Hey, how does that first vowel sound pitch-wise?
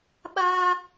high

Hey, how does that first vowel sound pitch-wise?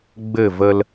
falling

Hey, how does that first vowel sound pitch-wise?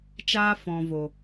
high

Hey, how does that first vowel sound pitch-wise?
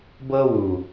high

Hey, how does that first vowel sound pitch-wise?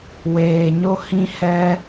low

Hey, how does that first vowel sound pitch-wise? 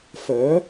rising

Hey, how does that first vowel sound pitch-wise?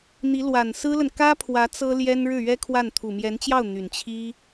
rising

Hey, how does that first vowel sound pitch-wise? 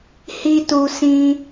high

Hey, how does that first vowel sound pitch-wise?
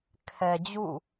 low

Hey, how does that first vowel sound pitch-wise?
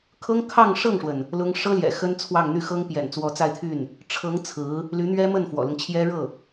high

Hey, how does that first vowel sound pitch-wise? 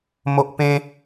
high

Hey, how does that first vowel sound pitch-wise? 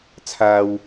low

